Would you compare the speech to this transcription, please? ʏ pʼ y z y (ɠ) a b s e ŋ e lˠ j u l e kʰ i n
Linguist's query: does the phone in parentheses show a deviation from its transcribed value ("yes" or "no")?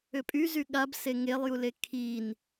no